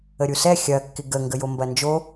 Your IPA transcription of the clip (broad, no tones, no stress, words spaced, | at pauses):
əɾʲusɛ xʲɐ kːɪɡə ŋɡəjombɐnd͡ʒo